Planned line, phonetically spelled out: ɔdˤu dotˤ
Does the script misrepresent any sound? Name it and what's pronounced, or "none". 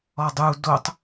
none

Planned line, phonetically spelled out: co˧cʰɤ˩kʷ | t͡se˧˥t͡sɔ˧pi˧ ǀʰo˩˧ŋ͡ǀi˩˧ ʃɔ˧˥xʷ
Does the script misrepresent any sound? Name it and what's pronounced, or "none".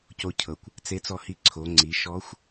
p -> h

